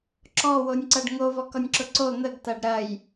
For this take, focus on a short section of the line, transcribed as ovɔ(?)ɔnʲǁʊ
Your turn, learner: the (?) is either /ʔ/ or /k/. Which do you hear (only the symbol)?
k